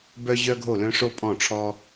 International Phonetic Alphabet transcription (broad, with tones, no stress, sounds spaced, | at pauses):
b œ˥ ʑ œ˥ ɡʱ o˥˨ l œ̃˥ ʂ o˥ pʼ ɔ̃˥˨ ʈ͡ʂʰ ɔ˥